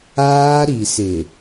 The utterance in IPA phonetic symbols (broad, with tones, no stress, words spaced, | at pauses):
aː˦ ɾi˨sɪ˨